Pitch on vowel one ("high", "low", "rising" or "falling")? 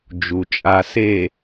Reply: low